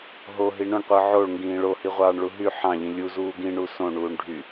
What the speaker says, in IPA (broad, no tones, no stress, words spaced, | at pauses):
ɦoɦi ɳõɳqʷɯ ʕoɭŋɡĩː ɭohiʁʷɑːɳɭu ɦy ħɑ̃ʎĩ lʲuzuː ɡĩɳu sõɳuːɳ ɖʱy